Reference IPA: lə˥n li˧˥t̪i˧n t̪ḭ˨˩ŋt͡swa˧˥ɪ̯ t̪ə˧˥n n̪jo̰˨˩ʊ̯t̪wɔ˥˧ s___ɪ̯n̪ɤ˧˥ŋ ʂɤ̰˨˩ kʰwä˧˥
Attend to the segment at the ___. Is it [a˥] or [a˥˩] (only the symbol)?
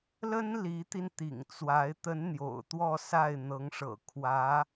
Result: a˥˩